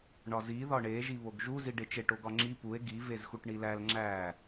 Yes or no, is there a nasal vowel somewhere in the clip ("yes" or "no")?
no